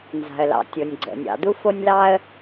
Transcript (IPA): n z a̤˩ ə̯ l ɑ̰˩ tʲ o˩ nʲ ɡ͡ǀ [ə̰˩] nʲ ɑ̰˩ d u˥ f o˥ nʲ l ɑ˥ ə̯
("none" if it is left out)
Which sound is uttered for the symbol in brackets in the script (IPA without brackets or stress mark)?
ə̰˩